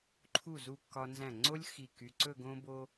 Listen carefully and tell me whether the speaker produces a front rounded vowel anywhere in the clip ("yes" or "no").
yes